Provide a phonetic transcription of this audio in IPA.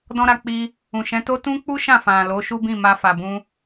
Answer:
dɔ̃˦ɾa˧k͡pi˧ | ũ˨ʃɛ̃˨˦to˦ tũ˦k͡pu˦ʃã˦˨ fã˨lo˨˦ʃu˦bĩ˦˨ ma˧fa˨ bũ˧

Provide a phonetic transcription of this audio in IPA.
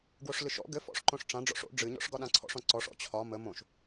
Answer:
ɡwoʂlɨʃɔ̰ ɡɘ fɔ̰ʂǃõʂʈ͡ʂã ɖ͡ʐɔ̰ʂo̰ ɖ͡ʐɨɲɔ̰ʂ ɡɒɗãǀʰɔ̰ʂɔ̃ ǀɔʂɔ̰ t͡ɕʰɒ mə mõʃ

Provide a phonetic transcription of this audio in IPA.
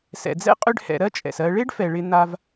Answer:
sɛ̰˩d͡zɛ̰˥ qʼʏ˧ɖhɛ̰˩ ɾɜ˥t͡ʃʼɛ̰˩s ɜ˧ ɭe˥ɖfɛ˩ ɭɪ˧n̪a˧v

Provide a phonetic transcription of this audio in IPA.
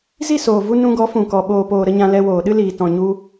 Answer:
zi˦˨soː˨vu˧ nũ˧ɡɔ˨˦ fũ˨kɔ˨ ɓoː˨poː˨ɾə˧ ɲã˧ lɛ˧woː˨ɗɨ˦liː˨ tɔ̃˨ɲu˧

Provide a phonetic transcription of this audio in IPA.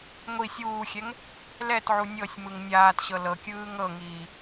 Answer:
ŋʷi sʲuːxʲɛŋ | lɛtʕu nʲɤsʲmɯŋ nʲaːtɕɤ lɤkʲɯː ŋɤŋiː

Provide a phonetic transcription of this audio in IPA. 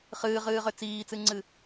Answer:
χɨːʁɨːʁʏ t͡siːt͡sɨŋ͡ǀɨ

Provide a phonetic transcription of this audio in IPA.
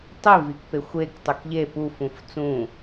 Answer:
tˤivik pexʷek tˤukʎe pufũf t͡sũ

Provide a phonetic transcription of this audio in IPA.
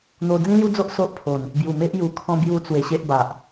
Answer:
n̪o˧ d͡zĩ˦lju˦d͡zo˦ʔ so˦ʔpʰo˨˩n | bju˨˩me˦ʔ ju˨˩ kʰɔ̃˦bju˦t͡swe˧ɕe˦ʔ ba˨ʔ

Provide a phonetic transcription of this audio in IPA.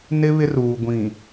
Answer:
nɪ˦ βɪ˦ruː˨ɡʷĩ˨

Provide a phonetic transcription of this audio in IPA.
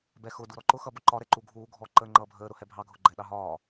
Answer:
bɛxʊ duɾɔǃʊ xʌbʊǃɒ ɾɛǃuɡʱuː ɡʱɔ ǃəːŋ͡ǃʌːbʱəː ɾʊhɛbʱɑ ɡʱʊɡ͡ǃɛɗɑɦɒː

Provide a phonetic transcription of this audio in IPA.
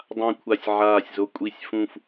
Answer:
dˤã˨˩ kʷʰa˨˩sʲʕaː˨˩sʲzo˨˩ kʷʼi˨˩sʲfũ˨˩f

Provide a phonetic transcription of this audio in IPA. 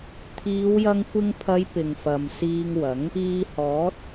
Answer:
t̪ʰiː˨˧wjɐ˧ŋkʷɪ˧ŋpʰɐ˨˧j pɪ˨ŋfɐ˨m siː˧ŋwɐ˨˥ŋ | iː˧hɔː˨˥t̚

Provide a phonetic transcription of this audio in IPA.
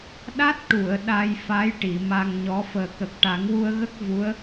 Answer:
ɗa˦˥t̚ʈu˨˩˨ə̯ ɗa˧jfa˧˥j ʈi˨˩˨ma˧ŋɲɔ˧˥ fəː˨˩kə˨˩k̚ ʈa˨˩˦ŋwu˧ə̯ɣə˦˥k̚ vu˧˥ə̯

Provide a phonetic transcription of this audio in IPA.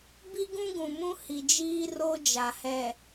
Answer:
bi˦ɡũ˦ɡũ˨mũ˦ hi˨d͡ʒiː˦ ro˦d͡ʒa˨hɛ˨

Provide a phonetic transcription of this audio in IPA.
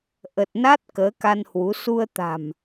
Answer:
ʔə˨˩t̚ na˦˥t̚ kəː˨˦ka˧nhwu˨˦ su˧ə̯t̪a̤˨˩m

